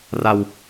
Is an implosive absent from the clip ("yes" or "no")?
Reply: yes